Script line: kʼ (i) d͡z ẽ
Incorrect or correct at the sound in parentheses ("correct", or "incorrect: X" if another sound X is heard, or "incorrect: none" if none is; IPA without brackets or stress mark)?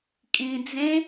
incorrect: ĩ